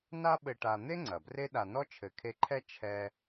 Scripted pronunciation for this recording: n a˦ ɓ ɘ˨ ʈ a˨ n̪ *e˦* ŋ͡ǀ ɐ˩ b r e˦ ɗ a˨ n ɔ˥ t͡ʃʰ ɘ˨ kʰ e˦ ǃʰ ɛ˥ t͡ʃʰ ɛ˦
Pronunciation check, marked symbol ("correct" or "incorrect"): incorrect